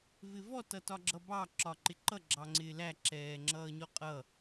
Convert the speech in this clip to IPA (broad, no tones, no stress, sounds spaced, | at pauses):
v ɪ v ɔ t ʌ t ɒ ɡ͡ǁ ʌ b ɑ ǁ ɒ ǃ ɪ ǃ ʌ ɡ͡ǁ ɑ ŋ͡ǀ ɪː l æ ǁ ɛː ŋ͡ǁ ʌː ɲ ɔ qʼ ʌ